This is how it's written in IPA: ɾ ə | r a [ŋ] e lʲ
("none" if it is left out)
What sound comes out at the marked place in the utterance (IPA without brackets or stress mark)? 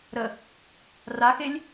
x